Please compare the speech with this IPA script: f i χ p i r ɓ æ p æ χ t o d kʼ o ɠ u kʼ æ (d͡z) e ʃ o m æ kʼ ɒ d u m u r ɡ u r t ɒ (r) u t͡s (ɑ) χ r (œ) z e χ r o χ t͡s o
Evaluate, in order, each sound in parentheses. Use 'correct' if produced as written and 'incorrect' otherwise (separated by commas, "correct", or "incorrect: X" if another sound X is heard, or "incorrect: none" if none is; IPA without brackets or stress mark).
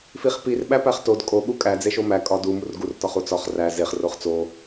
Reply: correct, incorrect: χ, incorrect: ɒ, incorrect: æ